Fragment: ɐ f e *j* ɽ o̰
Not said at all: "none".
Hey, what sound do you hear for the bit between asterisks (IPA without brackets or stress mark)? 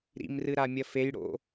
j